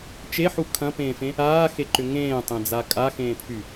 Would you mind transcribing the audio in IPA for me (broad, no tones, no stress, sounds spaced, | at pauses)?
t͡ʃ e ħ u kʰ ɐ̃ p ẽː f ẽ | aː x e ǃ ʏ ŋ ẽː tˤ ẽ d͡z a kʼ a x ẽː pʰ y